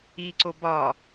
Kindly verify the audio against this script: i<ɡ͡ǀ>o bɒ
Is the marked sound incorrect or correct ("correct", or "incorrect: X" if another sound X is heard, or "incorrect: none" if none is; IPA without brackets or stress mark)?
incorrect: ǀ